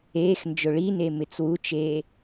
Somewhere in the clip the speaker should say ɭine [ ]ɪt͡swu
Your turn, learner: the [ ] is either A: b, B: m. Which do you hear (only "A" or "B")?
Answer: B